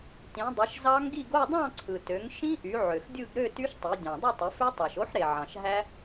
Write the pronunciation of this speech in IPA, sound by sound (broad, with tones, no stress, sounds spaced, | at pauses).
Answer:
t ĩ˩˧ dˤ i˩˧ ʃ z ɑ˦˥ ŋ ɡ i˥˧ ɡ o˥˧ dˤ ɑ̃˥˧ ǀʰ ɯ˩ t ø˩˧ ŋ ʃ ĩ˦˥ ʔ y˩˧ ʕ ø˩ x dʲ ɯ˥˧ ɡ ɾ ø˥˧ t y˦˥ ʃ tˤ i˩˧ dʲ ɑ̃˩ dˤ i˥˧ tˤ ɯ˩˧ f ø˦˥ tˤ ɑ˩ ʃ o˦˥ ħ ɾ e˩ ʕ ɑ̃˩ ʃ ɦ æ˦˥